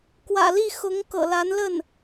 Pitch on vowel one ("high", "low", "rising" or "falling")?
low